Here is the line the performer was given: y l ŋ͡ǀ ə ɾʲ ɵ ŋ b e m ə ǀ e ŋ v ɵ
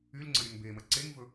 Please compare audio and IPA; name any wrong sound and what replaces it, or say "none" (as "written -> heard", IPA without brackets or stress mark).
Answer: none